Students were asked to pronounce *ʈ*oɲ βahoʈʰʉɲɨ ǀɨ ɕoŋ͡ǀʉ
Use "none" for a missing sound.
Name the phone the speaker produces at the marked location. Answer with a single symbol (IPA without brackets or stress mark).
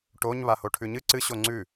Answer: ʈ